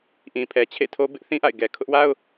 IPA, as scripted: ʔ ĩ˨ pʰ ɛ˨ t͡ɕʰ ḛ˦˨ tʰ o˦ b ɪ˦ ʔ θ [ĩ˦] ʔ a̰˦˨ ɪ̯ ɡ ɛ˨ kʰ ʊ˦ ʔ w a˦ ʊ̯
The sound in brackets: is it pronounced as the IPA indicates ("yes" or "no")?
yes